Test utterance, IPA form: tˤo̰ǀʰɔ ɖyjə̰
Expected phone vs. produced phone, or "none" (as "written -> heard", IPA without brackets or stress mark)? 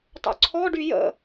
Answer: none